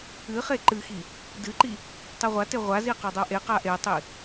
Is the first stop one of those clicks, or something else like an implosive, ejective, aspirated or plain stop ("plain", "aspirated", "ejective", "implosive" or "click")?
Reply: click